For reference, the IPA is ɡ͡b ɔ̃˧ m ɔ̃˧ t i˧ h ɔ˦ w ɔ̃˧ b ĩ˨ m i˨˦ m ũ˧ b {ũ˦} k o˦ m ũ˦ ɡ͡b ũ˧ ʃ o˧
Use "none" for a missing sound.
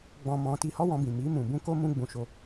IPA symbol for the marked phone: ũ˦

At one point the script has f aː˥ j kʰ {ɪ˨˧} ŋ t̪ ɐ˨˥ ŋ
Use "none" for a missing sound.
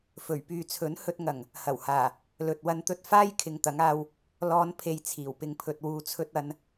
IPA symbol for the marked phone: ɪ˨˧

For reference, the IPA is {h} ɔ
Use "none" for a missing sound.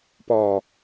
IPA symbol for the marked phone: p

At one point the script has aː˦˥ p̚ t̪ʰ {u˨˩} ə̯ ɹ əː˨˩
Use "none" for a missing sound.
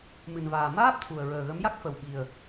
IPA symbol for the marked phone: u˨˩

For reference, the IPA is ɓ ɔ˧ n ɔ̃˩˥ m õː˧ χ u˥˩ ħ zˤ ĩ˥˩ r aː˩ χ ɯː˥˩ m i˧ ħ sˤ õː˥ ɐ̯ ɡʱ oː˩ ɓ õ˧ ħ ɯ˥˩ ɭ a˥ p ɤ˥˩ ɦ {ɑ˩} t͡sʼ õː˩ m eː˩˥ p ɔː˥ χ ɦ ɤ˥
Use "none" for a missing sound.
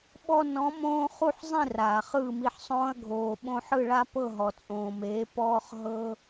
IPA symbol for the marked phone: ɔ˩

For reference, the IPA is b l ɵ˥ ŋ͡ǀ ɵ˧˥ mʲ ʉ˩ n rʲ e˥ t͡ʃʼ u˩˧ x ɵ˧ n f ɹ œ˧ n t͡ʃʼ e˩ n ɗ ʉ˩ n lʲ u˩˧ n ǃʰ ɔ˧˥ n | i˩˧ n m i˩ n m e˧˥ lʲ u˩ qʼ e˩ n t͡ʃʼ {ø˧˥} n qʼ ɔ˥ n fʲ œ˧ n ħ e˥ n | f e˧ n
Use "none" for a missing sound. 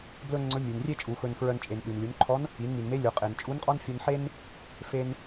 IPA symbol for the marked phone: u˧˥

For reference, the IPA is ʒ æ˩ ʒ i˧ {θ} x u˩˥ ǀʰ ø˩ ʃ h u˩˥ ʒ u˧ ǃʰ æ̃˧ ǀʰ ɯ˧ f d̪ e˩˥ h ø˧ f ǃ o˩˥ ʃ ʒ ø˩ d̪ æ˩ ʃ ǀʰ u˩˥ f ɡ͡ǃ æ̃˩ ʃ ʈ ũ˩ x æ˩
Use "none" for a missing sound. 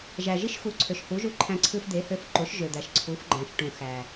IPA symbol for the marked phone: ʃ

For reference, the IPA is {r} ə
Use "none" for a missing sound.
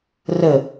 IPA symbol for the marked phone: r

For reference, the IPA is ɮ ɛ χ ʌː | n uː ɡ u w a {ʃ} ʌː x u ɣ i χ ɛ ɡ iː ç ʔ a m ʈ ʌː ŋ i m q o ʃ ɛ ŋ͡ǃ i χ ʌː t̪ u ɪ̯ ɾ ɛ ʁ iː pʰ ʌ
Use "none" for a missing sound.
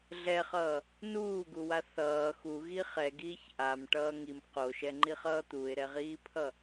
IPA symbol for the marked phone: θ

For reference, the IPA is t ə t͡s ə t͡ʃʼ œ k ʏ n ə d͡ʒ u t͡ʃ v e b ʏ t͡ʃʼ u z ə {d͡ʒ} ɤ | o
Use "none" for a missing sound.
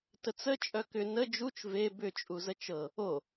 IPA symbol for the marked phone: t͡ʃ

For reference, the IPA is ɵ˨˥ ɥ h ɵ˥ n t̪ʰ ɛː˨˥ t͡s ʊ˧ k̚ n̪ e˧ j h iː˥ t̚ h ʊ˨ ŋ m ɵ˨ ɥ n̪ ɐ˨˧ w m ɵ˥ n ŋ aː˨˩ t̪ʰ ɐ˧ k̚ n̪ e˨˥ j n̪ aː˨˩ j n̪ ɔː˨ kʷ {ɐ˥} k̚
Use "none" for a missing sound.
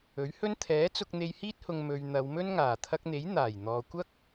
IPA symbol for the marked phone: ɐ˥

